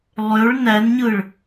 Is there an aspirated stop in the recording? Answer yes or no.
no